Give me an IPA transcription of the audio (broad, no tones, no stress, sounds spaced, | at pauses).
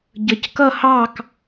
ɟ ə c k ʌ h ɑ k